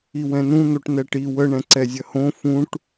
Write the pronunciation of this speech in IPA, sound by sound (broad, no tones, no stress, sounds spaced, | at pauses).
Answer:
i w ɛ̃ n ũ n̪ o ʈ n ɛ ʈ i w ə ɳ ɛ̃ ǀ ɛ zʲ ɐ h õ f ũ ʈ